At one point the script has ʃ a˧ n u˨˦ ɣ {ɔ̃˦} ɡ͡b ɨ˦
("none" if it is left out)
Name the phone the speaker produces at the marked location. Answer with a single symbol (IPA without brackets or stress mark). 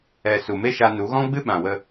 ɔ̃˦